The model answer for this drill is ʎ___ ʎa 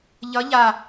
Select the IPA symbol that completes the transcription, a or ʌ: ʌ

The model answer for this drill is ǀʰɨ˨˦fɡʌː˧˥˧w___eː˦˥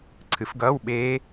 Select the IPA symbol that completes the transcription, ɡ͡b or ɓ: ɓ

